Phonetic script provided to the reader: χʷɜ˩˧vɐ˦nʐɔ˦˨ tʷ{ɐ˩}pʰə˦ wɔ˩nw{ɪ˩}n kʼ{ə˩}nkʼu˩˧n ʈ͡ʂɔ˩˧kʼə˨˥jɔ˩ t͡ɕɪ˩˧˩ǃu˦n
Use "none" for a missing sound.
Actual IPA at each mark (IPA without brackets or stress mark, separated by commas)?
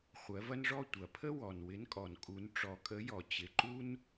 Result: ɐ˩, ɪ˨˥, ɔ˩